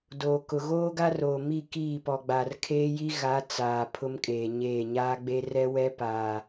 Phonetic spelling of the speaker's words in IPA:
d oː˨ k ʊ˨ ɣ oː˦ ɡ a˦ r oː˨ m i˦˨ k iː˦˨ p ɔ˨ ɡ͡b a˨ r kʰ eː˦ j i˦ ɣ a˨˦ t͡s aː˨ pʰ ʊ˦ m kʼ eː˨ ɲ eː˦˨ ɲ aː˦ ɡ͡b e˦ r ɛ˦ w ɛ˦ p aː˨

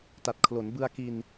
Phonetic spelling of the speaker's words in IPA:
t a˨˩ t̚ kʰ l o˩˦ n b ɯ˧ a̯ k i˧ n

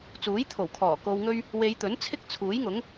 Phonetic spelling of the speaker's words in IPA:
t͡s uː˨˥ j t̪ʰ o˨˩ w kʰ ɔː˨˩ k o˨ w ŋ ɵ˧ ɥ | w e˨˧ j t̪ ɵ˨˥ n t͡sʰ ɪ˥ k̚ t͡sʰ uː˨˥ j ŋ ʊ˨˥ ŋ

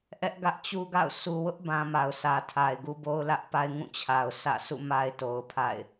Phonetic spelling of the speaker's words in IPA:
ʔ ɛ˦ ʔ ɡ ä˦ ʔ t͡ɕ u˦ ɡ a̰˦˨ ʊ̯ s u˨ w ʊ˦ ʔ b ã˦ m a˨ ʊ̯ s ä˨ tʰ a˨ ɪ̯ ɡ u˦ b o˦ ʊ̯ l ä˦ ʔ p a˦ ɪ̯ ŋ ũ˦˨ t͡ɕʰ a˨ ʊ̯ sʰ ä̰˦˨ s ṵ˦˨ m a˦ ɪ̯ t o˨ ʊ̯ pʰ a̰˦˨ ɪ̯

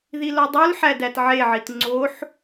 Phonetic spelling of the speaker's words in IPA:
ð i l o dˤ u l ħ æ d æ t ʕ e ʕ i t ŋ͡ǀ o ħ

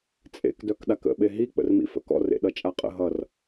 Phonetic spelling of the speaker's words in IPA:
t͡sʼ ḛ k d œ k ɗ a k ə̰ ɓ e ɦ i k͡p ə̰ r m ḭ f ə̰ k ɔ̰ r ḛ ɗ ʌ t͡ʃʼ a qʼ ə̰ ɦ ʌ r

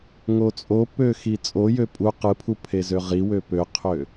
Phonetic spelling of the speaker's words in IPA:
ŋ o t͡sʼ o p ø x i t͡sʼ o j ø pʼ u q ɯ pʰ u pʰ e z ø ʁ i w ø p ø qʰ ø

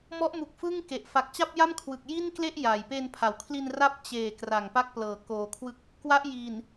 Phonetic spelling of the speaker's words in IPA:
m ɔ˦˥ ʔ m u˨˩ k̚ f ɯ˥˩ ŋ k e˨˩ ʔ f a˨˩ k̚ t͡ɕ a˥˩ p̚ j a˥˩ m kʰ w ɯ˨˩ k̚ j i˥˩ n k l e˥˩ ʔ j a˨˩ j p e˧ n pʰ a˩˦ w kʰ l i˧ n r a˦˥ p̚ t͡ɕ eː˨˩ k r a˨˩ ŋ p a˥˩ k̚ p l ɤː˨˩ k oː˧ kʰ w ɯ˥˩ k̚ | k w a˦˥ ʔ j iː˨˩ n

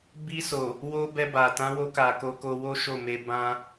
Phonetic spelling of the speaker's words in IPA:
b i˧ s o˨ | w o˧ b ɛ˧ b a˨ t ã˨˦ w o˧ k a˨ k o˧ k o˧ w o˦ ʃ o˦˨ m e˧ b ã˦

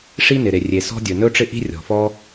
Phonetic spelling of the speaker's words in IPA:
ʂ i˥ n ɪ˩ ɾ e˩ rʲ e˩ s ɔ̤˥ dʲ ɵ˩ n ɵ˥ ʈ͡ʂ ɪ˥ ʔ i̤˥ rʲ ɔ̤˩ f ɔ˥

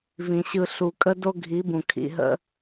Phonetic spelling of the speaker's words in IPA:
v ĩ˨ ɕ ɯ˨ ɬ u˨ kʼ ə˦ d o˦ ɡʱ i˨˦ b ũ˨ kʰ ḭ˨ ɦ ə̰˦

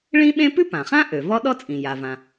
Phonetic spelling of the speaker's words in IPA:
ɭ ĩ˥ ɓ ẽ˥ p ʉ˥ p ã˩ χ ã˥ ʔ ø˩ v ɔ˥ ɗ ɔ˥ t͡sʼ ĩ˩ j a˩ v ã˩

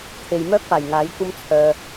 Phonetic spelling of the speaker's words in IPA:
t̪ʰ e˨ j m œː˥ k̚ p aː˨˩ j ŋ aː˨˥ j kʷ ɐ˥ m t͡sʰ œː˧

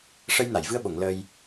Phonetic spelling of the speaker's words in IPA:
ʂ ə˧ j n a˨˩˨ j v ɨ˧ ə̯ ɓ o˨˩˨ ŋ l əː˧ j

